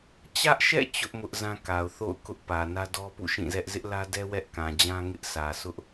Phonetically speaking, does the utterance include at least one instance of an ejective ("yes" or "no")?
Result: no